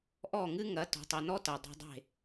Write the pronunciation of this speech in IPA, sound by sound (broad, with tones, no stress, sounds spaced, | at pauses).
ʔ ɔ˥˩ ŋ ɨ˥ ŋ ɐ˩˥ t ɔ̤˩ tˤ o˩ n ɔ˥ t ɐ˩ dˤ ɛ̤˧ dˤ e̤˥˩